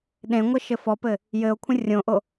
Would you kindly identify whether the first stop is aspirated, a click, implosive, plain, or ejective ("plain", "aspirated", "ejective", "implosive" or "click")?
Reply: implosive